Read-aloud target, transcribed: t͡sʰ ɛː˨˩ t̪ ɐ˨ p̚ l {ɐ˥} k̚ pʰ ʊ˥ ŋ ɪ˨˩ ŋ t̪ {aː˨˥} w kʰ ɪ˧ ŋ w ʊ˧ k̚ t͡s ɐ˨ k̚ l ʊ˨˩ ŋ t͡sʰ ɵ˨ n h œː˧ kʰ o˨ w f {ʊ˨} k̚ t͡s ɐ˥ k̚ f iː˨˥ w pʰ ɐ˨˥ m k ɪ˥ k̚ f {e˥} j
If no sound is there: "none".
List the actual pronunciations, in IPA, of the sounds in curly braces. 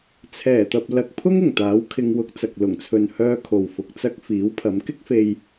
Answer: ɐ˨, aː˨˥, ʊ˨, e˧

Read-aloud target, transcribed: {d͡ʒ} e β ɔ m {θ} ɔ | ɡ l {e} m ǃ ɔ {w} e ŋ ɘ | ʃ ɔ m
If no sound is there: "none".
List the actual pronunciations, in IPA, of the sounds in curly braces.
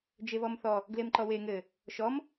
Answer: d͡ʒ, θ, e, w

